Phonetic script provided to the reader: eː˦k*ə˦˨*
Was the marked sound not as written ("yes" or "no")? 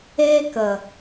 yes